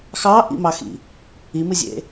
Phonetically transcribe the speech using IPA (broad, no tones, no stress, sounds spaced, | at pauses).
x ɑ ʔ ḭ m ɑ x ḭ | i m ɨ zʲ ḛ